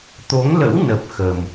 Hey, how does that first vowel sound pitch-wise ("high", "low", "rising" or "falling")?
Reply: rising